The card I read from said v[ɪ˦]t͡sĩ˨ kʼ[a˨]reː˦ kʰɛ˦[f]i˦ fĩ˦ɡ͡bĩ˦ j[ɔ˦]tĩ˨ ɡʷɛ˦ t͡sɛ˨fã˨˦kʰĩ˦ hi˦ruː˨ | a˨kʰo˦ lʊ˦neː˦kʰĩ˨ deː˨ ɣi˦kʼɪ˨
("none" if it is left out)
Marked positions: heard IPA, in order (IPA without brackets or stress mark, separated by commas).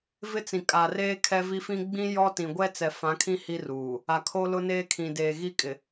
ɪ˦, a˨, v, ɔ˦